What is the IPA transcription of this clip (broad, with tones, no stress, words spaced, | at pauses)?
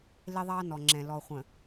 lɪ˦ðˤɑ˦nɔ˨ ŋ͡ǁɛ̃˨ lɔ˨χʷə̃˨